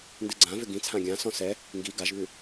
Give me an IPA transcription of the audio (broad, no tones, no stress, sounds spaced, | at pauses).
n d ɨ ɡ͡ǀ ã v ʏ ɡ ĩ t͡sʰ ã ɡʲ ã s ɔ̃ s ɛ | ŋ ɡ i ɡ a ʒ β ʉ